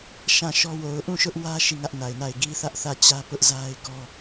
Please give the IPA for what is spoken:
ʃ ã˦˨ ʃ ɔ˦ w o˨ ʊ̯ ʔ ũ˦˨ ʃ ʊ˦ ʔ w ä˦ ʃ i˦˨ ŋ ä˦ ʔ n a˨ ɪ̯ n a˦˨ ɪ̯ ɡ i˦ θ ä˦ ʔ θ ä˦˨ t͡ɕ ä˦ p ʊ˦ ʔ z a˦ ɪ̯ ɡ ɔ˦

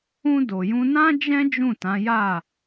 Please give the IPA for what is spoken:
ũ˧ d o˨ j ũ˧ n ã˦ d͡ʒ ɛ̃˦ d͡ʒ ũ˦˨ t ã˨˦ j a˦˨

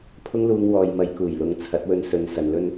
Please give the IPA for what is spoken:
pʰ ʊ˥ ŋ l uː˧ ŋ w ɔː˨ j m ɐ˨˧ j k uː˨˩ j l ʊ˨˥ ŋ t͡sʰ ɐ˨˥ t̚ w ɵ˧ n s ɵ˨˧ n s ɐ˨ n l ɵ˥ n

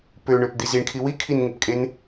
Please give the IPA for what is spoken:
p ø ɳ ø p d̪ i z i ɳ kʰ i w i kʰ i n ŋ e p kʼ e n

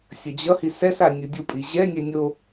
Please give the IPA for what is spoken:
sʲ ʌ d͡ʑ ʌ h i s ɛ s a nʲ ɯ dʲ u pʼ i ʑ ɛ nʲ ɛ nʲ o

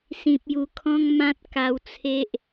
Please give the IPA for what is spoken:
s ĩ˨ p̚ j u˨˩ kʰ ɔ̃˦ ŋ m ã˦ t̚ k a˧ w t͡sʰ e˦ ʔ

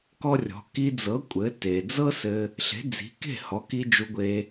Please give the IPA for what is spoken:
k ɔ˥ rʲ ɔ̤˩˥ k i˧ d͡z ɤ˩˥ kʷʼ ɘ˩˥ t e˩ d͡z ɤ˥ s ɘ˧ | ɬ e̤˩˥ d͡z i̤˩˥ k e̤˥˩ h ɔ˩˥ k i˧ d͡ʒ u˧ ɡʷ e˧

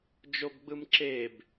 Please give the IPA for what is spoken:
d͡ʒ o b ɡ͡b ɯ m ǁ e b

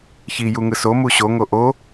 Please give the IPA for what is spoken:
ç i j u ŋ ɯ s o m u ɕ o ŋ o ʔ o

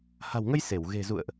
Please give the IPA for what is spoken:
h a̤˨˩ w ŋ ə˧ j s e˧˩ w ɣ e̤˨˩ z ṵ˧˨ ə̯ ʔ

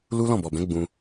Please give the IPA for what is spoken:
l u˦ l ɔ̃˦˨ b ɔ˨ b ɛ̃˨˦ ɡ͡b ũ˧

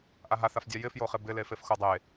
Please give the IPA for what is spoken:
ʔ a ɦ a θ a f dʲ a j ɪ f j o χ ɪ b ɪ l e f e f x o dˤ e

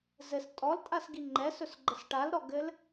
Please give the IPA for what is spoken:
z ɘ s tʼ ɔ l tʼ a s ɡ i ŋ͡ǃ ɛ s ɵ s ɡ͡ǃ ə s ʈ a l ɾ ɔ ɡ ɘ l

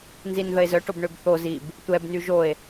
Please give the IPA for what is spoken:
n z i n ð ə e̯ z œ ʈ o b ɳ ø b θ o z i b | tʷ ɛ b n y ʒ o e̯

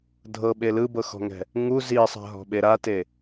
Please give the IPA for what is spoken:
dʱ ɤ ɓ e l ɯ b ɤ x ɔ̤ ŋ ɛ̤ | ŋ u z i sˤ a̤ ɦ ɔ̤ ɓ e ɾ a t e

